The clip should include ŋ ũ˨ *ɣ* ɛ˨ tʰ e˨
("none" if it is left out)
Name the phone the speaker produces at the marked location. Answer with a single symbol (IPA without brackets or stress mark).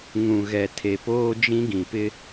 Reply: ɣ